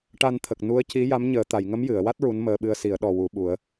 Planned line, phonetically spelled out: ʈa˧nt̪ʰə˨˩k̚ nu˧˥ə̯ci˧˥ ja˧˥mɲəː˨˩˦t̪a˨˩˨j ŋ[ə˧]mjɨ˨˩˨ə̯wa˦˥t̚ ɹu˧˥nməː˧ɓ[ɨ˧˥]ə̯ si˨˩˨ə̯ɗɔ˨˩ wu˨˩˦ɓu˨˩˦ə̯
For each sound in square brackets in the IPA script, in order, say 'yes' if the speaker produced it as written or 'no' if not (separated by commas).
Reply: no, no